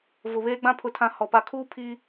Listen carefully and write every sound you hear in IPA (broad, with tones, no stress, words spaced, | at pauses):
vʊ˨βeː˦ɡ͡bã˦ pʰʊ˨˦tʰã˨ hɔ˨ pa˨kʰuː˦ pʰi˦